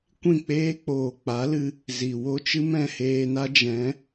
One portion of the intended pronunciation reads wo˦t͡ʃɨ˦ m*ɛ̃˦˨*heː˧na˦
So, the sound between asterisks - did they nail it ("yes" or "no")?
yes